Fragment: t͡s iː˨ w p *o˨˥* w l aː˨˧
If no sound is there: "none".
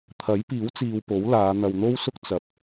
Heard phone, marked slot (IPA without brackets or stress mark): o˨˥